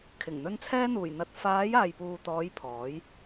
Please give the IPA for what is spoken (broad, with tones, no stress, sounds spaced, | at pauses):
kʰ ɪ˨˩ ŋ n̪ ɵ˧ n t͡sʰ ɛː˥ n̪ uː˨˩ j n̪ ɐ˧ t̚ f aː˨˧ j aː˨ j p uː˨ t̪ ɔː˨˧ j pʰ ɔː˨˥ j